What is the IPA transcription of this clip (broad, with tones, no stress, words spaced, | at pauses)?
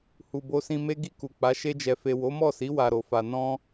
hu˨bo˧sĩ˧ me˦ɡi˦˨ku˨k͡pa˨˦ ʃe˧d͡ʒɛ˨fe˨ wo˨˦mɔ˦˨si˨˦ wa˧ɾo˨fa˧ nɔ̃˦